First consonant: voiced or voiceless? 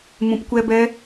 voiced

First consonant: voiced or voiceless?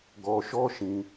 voiced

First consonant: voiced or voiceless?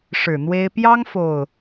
voiceless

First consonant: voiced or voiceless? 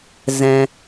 voiced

